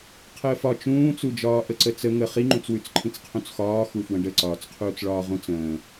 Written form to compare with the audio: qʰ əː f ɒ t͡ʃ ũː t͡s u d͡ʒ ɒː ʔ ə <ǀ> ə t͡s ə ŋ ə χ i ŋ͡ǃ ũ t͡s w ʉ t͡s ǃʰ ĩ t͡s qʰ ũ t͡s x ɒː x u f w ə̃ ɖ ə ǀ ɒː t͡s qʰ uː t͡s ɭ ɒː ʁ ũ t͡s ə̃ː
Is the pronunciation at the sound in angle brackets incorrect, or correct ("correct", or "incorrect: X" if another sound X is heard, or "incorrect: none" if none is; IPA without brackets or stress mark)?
correct